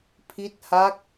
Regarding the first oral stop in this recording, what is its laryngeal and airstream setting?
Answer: aspirated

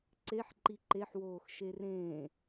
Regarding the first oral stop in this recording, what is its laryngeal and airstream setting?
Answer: click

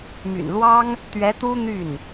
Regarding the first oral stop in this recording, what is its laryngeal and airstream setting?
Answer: plain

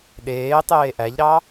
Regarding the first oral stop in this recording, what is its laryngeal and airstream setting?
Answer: implosive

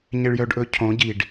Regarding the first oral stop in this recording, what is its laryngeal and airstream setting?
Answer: plain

